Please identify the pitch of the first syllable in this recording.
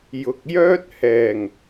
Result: low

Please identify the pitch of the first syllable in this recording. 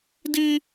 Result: high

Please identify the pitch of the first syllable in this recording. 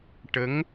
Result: rising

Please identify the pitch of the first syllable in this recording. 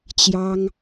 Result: high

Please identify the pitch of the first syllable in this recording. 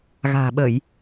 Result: low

